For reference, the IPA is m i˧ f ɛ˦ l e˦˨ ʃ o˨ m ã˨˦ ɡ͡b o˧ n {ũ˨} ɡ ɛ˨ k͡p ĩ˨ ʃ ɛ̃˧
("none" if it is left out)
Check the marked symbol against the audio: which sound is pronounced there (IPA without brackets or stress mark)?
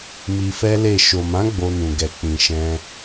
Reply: ũ˨